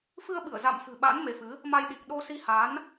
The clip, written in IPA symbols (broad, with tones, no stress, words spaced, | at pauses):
fɨ˧ə̯ɓɨ˧˩ə̯ za̰˧˨mfɨ̤˨˩ɓa̰˧˥n me˨˦fɨ˨˦ | ma˧jɗi˨˩k̚ ɗo˧si˧ha˨˦n